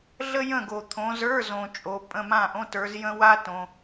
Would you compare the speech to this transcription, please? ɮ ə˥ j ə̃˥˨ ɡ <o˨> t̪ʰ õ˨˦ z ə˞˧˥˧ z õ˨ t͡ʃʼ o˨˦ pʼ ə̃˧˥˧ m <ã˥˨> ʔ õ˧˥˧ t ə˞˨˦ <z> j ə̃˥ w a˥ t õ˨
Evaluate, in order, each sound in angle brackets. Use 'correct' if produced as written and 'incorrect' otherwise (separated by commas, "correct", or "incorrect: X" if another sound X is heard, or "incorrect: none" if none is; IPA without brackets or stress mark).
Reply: correct, correct, correct